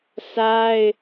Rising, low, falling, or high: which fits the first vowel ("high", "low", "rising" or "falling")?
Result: high